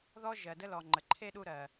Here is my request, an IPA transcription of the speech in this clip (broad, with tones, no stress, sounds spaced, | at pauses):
ð ɔ˦ ʒ ɜ˩ d ə˦ l ɔ˩ ŋ͡ǃ ə˩ ǃʰ e˥ ɗ u˦ ɾ ɜ˩